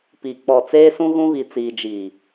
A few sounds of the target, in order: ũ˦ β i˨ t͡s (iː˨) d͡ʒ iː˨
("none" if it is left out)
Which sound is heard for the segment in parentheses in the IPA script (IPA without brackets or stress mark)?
iː˨